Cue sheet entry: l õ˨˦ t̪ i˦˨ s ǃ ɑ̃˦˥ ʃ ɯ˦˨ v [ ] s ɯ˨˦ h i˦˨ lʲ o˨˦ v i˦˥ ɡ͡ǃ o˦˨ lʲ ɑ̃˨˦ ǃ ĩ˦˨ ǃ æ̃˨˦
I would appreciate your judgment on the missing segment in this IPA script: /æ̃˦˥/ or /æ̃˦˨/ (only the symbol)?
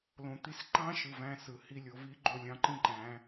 æ̃˦˥